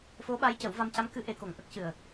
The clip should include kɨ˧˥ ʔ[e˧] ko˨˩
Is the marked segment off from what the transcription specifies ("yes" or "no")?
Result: yes